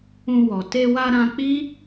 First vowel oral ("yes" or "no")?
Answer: no